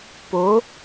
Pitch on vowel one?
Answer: rising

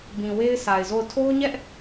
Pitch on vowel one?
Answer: low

